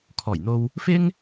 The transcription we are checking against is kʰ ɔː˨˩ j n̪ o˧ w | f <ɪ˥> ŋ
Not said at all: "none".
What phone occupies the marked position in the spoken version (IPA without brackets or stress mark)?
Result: ɪ˥